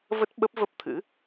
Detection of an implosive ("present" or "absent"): present